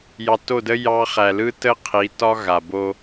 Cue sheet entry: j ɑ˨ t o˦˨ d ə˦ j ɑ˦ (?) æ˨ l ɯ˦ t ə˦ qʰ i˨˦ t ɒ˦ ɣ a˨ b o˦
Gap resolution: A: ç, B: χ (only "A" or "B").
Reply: B